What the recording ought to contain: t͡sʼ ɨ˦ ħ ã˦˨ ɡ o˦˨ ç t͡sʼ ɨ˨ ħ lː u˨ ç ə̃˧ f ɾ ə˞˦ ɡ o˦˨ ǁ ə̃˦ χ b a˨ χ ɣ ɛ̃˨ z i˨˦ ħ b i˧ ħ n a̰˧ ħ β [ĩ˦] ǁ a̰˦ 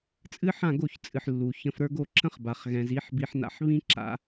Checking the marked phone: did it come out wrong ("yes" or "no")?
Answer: no